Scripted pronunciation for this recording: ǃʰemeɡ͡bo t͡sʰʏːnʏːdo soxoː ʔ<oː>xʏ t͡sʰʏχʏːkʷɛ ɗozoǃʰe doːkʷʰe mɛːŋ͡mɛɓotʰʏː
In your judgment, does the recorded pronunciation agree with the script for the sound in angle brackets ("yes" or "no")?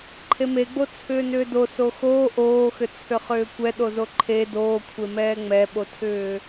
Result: yes